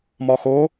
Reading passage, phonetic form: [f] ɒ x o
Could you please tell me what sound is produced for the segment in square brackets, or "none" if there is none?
m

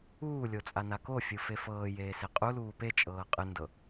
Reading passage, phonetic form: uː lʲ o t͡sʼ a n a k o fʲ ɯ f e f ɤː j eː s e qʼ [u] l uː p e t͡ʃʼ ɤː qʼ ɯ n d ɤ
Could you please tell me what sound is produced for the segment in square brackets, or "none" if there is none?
u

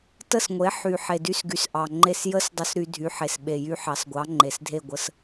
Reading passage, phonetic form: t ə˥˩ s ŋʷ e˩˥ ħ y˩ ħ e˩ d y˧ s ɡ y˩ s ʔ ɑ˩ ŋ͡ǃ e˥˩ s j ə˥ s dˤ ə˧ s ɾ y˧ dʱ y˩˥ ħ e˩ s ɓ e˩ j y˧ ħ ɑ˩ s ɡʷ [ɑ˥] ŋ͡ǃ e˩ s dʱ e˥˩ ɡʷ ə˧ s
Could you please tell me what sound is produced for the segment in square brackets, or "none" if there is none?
ɑ˩˥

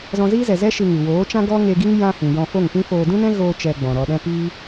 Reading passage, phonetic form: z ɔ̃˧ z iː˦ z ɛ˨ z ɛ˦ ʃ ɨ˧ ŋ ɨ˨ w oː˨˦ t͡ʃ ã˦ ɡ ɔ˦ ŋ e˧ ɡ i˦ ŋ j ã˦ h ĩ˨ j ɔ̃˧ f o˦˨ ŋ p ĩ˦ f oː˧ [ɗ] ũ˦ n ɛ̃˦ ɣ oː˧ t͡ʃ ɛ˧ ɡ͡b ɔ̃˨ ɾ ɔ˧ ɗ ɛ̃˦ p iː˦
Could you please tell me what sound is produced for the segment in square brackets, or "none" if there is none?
d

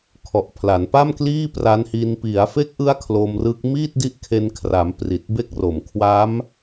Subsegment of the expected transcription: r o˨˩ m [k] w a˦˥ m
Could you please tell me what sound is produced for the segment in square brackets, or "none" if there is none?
kʰ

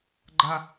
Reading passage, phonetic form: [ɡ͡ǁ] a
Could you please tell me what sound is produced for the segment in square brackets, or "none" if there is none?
ɡ͡ǃ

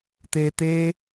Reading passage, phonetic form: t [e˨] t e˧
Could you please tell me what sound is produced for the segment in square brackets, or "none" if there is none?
e˨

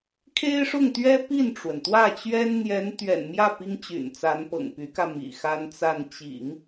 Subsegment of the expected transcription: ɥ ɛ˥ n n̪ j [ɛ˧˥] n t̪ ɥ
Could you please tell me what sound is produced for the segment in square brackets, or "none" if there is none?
ɛ˧˥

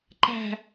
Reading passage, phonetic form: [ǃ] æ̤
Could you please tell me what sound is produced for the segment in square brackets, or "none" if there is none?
ǃ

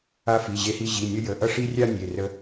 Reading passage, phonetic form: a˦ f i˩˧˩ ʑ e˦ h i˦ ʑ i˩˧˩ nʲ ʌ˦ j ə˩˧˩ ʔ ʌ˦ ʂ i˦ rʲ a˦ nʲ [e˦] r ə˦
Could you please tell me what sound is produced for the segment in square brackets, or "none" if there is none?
e˩˧˩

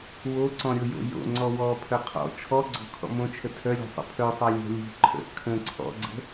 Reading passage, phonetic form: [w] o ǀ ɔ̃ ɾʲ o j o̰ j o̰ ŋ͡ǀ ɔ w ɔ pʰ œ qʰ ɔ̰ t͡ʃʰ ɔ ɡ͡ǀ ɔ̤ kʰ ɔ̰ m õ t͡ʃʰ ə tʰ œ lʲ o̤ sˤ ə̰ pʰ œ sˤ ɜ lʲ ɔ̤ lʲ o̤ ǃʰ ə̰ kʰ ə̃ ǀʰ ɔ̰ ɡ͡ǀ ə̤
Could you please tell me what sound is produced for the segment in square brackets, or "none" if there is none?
w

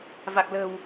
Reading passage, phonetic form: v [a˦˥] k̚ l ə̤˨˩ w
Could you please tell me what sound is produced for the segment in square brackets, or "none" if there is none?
a˨˩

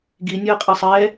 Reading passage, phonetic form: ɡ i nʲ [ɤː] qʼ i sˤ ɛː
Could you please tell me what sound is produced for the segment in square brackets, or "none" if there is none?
ɤː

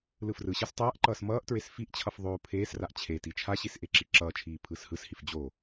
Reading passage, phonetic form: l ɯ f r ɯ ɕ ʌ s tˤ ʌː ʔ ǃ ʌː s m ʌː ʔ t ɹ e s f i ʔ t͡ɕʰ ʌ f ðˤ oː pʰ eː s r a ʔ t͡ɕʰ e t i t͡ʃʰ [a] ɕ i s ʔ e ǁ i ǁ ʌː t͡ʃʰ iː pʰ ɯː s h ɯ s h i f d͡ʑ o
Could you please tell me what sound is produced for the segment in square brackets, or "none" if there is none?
a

